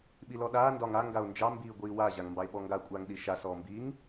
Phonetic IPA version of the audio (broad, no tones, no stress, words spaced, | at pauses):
ɓilɔɗaː ndɒŋa ŋɡao̯nd͡ʒɑ mbiːɡʷiːwa ʑaŋmbɑe̯ɓɔŋɡa kʷʼaːŋɗiʃa sɔːmbiːŋ